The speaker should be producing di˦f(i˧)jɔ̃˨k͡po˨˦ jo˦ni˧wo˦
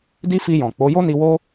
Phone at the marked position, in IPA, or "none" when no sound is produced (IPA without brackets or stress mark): i˧